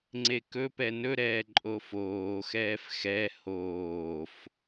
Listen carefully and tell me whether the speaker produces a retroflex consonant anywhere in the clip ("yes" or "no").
no